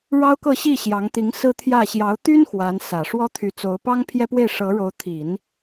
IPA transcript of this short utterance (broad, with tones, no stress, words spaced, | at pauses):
ɻɑ˥ʊ̯kɤ˥˧ɕi˥˩ ɕjɑ˧˥ŋt̪i˧˥ŋ sɹ̩˥t̪ʰjä˥˩ ɕjɑ˧˥ʊ̯t̪y˥n xwa˧˥n sä˨˩ʂwɔ˥ t̪ʰy˧˥t͡so˧˥ʊ̯ pɑ˥ŋpʰjɛ˥pwe˥˩ɪ̯ʂɤ˧˥ ɻo˧˥ʊ̯t̪ʰi˨˩˦n